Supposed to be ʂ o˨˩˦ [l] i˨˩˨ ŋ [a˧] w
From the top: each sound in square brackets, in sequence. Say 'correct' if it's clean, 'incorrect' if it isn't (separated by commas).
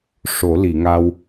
correct, correct